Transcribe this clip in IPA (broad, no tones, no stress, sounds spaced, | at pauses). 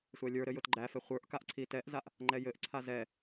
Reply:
sʷ æ lʲ ə˞ ɾ ɘ j ʊ t ɡ͡ǃ æ f ɛ χʷ ə˞ ʔ k a ʔ ǀʰ i t ɛ ʔ z a ʔ | ŋ͡ǃ ɛ j ɘ ʔ ǀʰ a z ɛ